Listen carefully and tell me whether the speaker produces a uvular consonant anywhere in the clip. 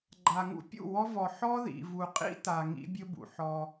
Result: yes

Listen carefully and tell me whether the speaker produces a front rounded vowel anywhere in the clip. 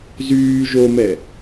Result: yes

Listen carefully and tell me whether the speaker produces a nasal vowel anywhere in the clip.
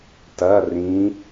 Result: yes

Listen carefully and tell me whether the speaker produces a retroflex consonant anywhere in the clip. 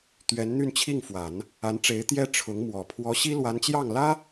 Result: yes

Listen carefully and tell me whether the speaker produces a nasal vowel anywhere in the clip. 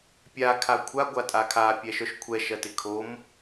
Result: no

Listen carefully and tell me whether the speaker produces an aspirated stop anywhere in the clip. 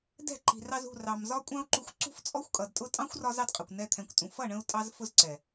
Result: yes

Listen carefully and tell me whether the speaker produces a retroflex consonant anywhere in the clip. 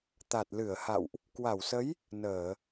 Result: no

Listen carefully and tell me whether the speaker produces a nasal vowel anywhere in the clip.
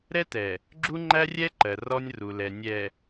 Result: no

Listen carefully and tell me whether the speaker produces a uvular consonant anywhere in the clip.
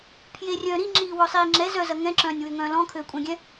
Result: no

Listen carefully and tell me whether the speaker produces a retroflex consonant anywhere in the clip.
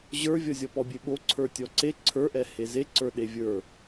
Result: no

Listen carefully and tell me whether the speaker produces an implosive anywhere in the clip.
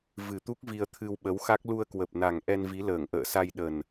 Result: yes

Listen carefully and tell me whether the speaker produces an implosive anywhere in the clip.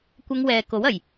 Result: no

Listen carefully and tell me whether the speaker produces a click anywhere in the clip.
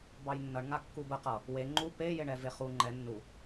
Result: yes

